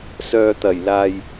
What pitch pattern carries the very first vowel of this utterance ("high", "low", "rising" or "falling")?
low